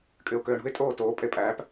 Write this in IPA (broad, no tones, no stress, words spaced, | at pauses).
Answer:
kʼyʊ̯køːɳṳɪ̯ tʼoːtoː pʼepʼæːp